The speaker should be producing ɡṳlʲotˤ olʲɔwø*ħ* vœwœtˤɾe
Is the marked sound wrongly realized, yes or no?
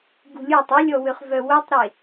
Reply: yes